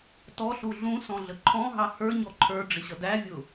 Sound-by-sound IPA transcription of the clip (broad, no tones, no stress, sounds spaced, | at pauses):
t ɔ ɬ u ɮ ũ s ɔ̃ ɮ ə ǃʰ ɔ̃ ɦ ɑ h ə˞ ɲ ɔ ǃʰ ə˞ ɖ͡ʐ ɪ ɕ ʌ d æ vʲ ʊ